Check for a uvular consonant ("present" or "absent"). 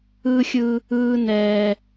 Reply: absent